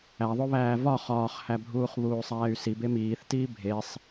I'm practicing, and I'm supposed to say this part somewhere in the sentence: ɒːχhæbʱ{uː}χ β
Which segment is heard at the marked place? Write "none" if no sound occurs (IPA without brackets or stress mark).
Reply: uː